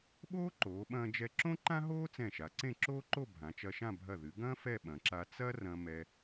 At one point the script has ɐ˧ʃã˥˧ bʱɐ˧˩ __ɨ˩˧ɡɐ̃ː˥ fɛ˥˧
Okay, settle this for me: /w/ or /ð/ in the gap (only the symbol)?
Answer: ð